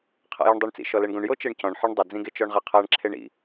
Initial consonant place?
uvular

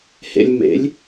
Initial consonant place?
glottal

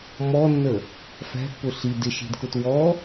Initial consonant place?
labial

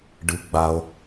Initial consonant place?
retroflex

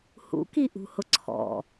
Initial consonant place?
glottal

